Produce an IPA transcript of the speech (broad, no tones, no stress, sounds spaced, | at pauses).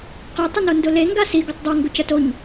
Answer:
q e tˤ ʊ n o n d ʊ l e ŋ ɡ a s i ɡ ʊ tˤ dˤ o ŋ ɡ ʊ c ə t o ɲ